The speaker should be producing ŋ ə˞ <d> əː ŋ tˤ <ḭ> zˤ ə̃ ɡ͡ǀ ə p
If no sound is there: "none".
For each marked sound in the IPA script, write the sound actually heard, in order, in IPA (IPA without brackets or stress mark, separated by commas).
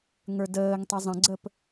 d, i